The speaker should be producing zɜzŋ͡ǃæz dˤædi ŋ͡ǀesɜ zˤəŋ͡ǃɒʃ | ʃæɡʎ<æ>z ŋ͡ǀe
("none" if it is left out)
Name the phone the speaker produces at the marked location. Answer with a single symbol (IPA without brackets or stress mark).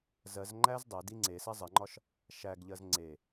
ɜ